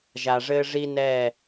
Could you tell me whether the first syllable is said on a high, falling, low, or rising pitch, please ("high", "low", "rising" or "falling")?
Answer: low